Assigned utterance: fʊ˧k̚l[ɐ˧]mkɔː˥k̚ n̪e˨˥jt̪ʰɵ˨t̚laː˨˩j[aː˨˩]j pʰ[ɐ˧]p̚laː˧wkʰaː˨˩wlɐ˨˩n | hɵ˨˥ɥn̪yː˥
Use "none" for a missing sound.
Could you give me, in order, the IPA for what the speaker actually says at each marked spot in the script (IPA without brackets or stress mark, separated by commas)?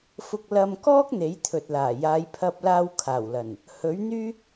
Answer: ɐ˧, aː˨˧, ɐ˧